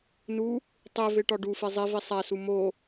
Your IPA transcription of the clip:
nu | tˤeve ʈɒɖufe zˤivi sˤæsu mo

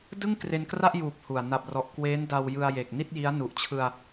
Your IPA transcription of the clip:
dɯ˥˩ŋ kre˧nkra˥˩ʔjuː˨˩p̚ hu˨˩a̯ na˨˩p̚rɔ˨˩ʔ kweː˦˥nda˧w jɯ˧a̯je˨˩k̚ni˥˩t̚ji˦˥a̯ nu˨˩ʔt͡ɕʰɯ˧a̯

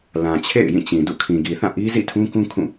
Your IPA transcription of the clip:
lã˨t͡ɕʰḛ˦˨ɪ̯ jĩ˦˨ t͡ɕĩ˨dṵ˦˨ kʰĩ˨ɡi˨θã˦˨ ʔi˦zḭ˦˨tʰũ˦kũ˦ kʰũ˦˨

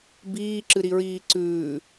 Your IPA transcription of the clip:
biːǁɨɾiɹiː ǀʉː

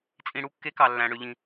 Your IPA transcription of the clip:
t͡sʼĩ˨ɽu˨˥kːe˨˥ kɑ˨lːæ̃˨ ɽø˨ ʎĩ˨

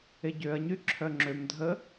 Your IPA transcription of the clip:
eɟøɐ̯ɲy ǁʰœŋ͡ǁømdʱə

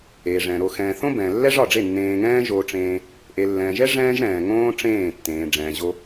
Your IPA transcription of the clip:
eː˨ʐɛ̃ː˨ɾo˧xɛ̃ː˧ θõ˦bɛ̃˨lːɛ˦ ʐɒ˦˨ɖ͡ʐe˦˨ nːẽː˧ŋɛ̃ː˦ʒoː˧ ʈ͡ʂẽː˧ | ʔe˨lːɛ̃ː˨ʒɛ˦ ʐɛ̃ː˦ʒɾɛ̃ː˨ŋõː˦ ʈ͡ʂẽː˦˨tːẽː˨ ɖ͡ʐɛ̃ː˨ʑo˧

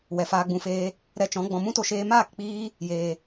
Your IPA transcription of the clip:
wɛ˨faː˧ɡ͡bũ˧feː˧ | ɾɛ˧t͡ʃɔ̃˨˦ ɡ͡bɔ̃˨mũ˦to˧ʃeː˧ maː˦˨kk͡piː˧ | jeː˨

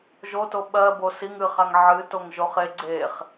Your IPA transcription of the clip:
ʒoto ɓɜ bosiŋ ɨχ aŋʕɨtoŋ ʒoχe ɡ͡ǀeχ

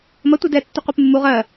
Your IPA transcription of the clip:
mɐ tʷedɛ tːʏqʷepmːuʁ ɜ

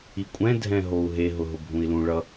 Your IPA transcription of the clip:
ikʷʼɛ̃ dʱɛ̃ɦou̯ɦe ɦʊɦʊbʱũi̯lũ ɭʌ

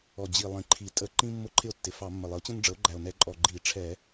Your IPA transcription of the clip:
ɔ˨˩d͡ʑi˨˩ lˠĩ˨˩ǃʰi˨˩tʼə˧˩˧ ǃĩ˦ mːʊ˥˩ǃʰɪ˥˩o̯tːɪ˨˩ fɑ˧˩˧mːə˨˩ lˠɪ˩˥o̯t͡ɕə̃˦nɖ͡ʐə˩˥o̯ɡ͡ǃæ˨˩o̯ nɛ˧˩˧ǃʼɔ˨˩ ɡ͡ǃi˧˩˧ ʈ͡ʂʰɛ˧˩˧

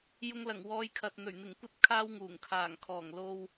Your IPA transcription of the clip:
jʊ˧ŋlɐ˨˩ŋ wɔː˨˧jkʰɐ˨t̚n̪ɵ˨˩ɥn̪ɪ˨˩ŋ kʷɐ˥t̚ kʰaː˥wŋuː˨˩ŋkʰaː˨˩ŋ kʰɔː˨˩ŋ lo˧w

